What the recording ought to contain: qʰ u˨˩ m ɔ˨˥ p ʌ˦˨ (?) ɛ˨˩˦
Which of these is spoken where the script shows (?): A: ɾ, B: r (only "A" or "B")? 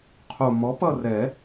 B